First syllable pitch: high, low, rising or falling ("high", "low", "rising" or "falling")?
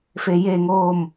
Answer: low